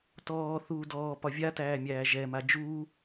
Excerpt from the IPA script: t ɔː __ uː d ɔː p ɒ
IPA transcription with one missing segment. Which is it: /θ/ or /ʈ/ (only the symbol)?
θ